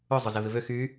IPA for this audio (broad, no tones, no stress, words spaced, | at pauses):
ʊ zˤʊzɪvɪvø xy